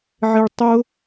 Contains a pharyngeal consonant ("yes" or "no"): yes